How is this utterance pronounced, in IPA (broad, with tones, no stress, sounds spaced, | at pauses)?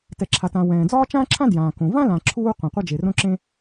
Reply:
t ɛ˩ ǁʰ a˩ t ã˩ w ɛ̃ː˩ d͡z ɒː˥ t͡ʃ ãː˥ ǁʰ ã˥ d j ãː˩ k õ˩ v ã˥ l ã˩ ǁʰ uː˥ qʷ ã˩ qʷ a˥ d͡ʒ e˩ r õ˥ ǁ ẽ˥